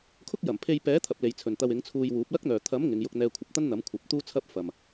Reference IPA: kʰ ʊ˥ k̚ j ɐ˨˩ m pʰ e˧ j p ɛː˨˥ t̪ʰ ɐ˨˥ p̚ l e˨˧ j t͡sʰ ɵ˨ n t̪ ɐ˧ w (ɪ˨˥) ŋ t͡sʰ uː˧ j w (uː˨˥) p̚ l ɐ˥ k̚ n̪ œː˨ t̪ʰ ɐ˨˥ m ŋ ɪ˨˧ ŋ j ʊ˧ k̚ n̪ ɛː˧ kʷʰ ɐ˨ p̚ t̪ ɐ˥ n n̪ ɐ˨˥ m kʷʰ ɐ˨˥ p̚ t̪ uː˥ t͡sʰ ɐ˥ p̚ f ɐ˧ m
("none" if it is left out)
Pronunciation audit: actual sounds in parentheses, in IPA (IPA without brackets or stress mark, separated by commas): ɪ˨˥, uː˨˥